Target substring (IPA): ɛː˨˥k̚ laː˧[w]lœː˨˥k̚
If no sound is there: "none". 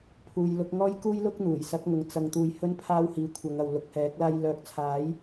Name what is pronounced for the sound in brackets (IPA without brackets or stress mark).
j